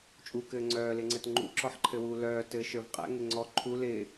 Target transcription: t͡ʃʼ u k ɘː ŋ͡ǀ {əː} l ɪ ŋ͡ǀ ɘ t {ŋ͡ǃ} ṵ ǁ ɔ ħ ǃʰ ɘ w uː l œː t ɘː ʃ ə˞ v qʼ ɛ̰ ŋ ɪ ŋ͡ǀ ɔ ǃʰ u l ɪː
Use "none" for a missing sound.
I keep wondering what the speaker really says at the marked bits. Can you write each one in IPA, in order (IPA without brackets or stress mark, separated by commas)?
œː, ŋ͡ǃ